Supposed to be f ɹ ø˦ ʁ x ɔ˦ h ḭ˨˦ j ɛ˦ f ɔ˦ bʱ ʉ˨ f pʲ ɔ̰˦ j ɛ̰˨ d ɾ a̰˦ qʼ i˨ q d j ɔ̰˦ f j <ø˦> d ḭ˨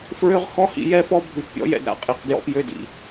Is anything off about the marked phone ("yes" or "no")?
no